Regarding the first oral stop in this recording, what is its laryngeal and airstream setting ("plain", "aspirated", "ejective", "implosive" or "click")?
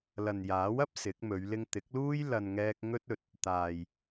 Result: plain